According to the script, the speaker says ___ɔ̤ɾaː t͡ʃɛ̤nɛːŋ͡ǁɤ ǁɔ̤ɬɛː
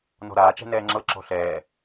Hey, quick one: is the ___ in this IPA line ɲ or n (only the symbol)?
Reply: n